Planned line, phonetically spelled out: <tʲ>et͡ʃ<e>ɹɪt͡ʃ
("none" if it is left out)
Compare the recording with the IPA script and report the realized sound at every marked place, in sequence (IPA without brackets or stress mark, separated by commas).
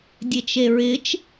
dʲ, e